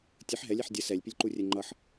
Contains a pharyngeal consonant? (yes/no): yes